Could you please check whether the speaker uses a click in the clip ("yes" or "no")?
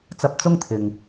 no